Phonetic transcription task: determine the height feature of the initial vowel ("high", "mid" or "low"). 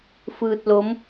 high